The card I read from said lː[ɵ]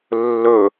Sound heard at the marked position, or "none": ɵ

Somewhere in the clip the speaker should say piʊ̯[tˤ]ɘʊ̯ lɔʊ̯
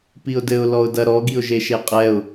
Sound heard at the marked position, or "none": d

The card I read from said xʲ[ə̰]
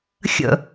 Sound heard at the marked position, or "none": ə̰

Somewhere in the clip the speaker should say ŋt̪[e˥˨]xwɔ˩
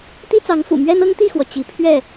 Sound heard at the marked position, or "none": i˥˨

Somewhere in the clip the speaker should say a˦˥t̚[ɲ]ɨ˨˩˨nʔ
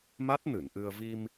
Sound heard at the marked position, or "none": n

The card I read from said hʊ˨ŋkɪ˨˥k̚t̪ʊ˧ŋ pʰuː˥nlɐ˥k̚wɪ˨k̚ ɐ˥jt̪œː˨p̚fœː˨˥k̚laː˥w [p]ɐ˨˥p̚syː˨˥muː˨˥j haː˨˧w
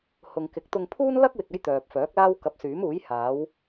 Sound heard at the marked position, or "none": k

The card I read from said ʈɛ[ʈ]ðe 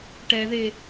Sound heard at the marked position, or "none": none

